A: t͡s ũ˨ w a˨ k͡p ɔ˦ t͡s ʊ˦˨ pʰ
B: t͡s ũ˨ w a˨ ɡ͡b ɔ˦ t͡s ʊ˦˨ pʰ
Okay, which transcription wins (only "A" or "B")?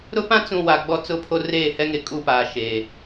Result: B